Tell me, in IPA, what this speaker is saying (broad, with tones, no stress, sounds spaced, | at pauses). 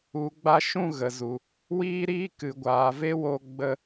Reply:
u˨ ɡ͡b a˧ ʃ ũ˦˨ ɣ ə˨ z u˨ | w iː˦ ɾ iː˦ k ɨ˨ ɡʷ aː˨ v e˦ w o˧ ɡ͡b ə˧